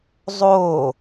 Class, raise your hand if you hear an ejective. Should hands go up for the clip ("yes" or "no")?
no